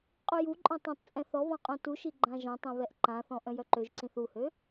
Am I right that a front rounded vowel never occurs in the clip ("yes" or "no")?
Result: no